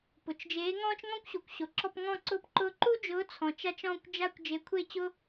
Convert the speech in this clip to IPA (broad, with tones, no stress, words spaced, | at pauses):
pʊ˩t͡ʃd͡ʒeː˨˥ ŋɔ̃ː˥t͡ʃŋɔ̃˥kʷɕu˩kʷɕo˩ ǁɔ˥˧pŋɔ̃˥˧ǀʊː˥˧pǃʊː˥˧ ǃu˥d͡ʒʊː˨˥t͡sʰɔ̃˩ t͡ʃa˥t͡ʃɔ̃ː˥˧kʷd͡ʒa˥˧kʷ d͡ʒe˨˥kʷʰe˥˧t͡ɕʊ˥